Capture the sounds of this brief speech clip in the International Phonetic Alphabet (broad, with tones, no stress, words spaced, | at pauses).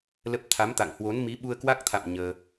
lə˦˥p̚ t̪ʰa˨˦mt̪a̰˧˨ŋhwo˨˦n mi˨˦ɓu˧ə̯kwa˦˥k̚t̪ʰa̰˧˨m ɲəː˧